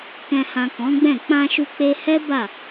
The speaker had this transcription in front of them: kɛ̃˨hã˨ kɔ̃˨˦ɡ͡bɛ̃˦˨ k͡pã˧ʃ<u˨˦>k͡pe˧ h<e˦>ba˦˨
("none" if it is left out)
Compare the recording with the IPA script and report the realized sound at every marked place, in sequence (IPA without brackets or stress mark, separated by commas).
u˧, ɛ˦